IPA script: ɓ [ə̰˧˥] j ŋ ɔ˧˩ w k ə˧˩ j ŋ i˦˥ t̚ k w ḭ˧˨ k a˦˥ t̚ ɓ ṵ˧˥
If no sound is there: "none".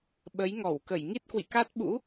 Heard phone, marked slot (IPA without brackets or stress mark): ə˨˦